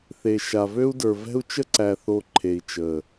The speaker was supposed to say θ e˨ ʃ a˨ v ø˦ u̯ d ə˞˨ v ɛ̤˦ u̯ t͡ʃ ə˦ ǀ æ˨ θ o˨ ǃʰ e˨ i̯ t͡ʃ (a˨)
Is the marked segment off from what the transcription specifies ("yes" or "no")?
yes